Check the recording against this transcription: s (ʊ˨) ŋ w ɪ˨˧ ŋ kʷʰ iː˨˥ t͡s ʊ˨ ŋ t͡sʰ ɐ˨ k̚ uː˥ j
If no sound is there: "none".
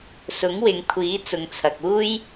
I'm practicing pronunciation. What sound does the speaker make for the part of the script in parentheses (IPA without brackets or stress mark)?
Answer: ʊ˨˥